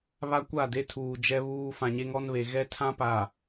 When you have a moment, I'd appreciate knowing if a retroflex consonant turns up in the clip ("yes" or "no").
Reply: no